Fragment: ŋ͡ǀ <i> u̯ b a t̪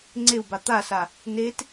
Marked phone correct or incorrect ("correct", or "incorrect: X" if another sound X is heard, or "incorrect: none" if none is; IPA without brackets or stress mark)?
incorrect: e